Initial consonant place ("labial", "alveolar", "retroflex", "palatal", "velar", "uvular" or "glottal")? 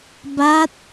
labial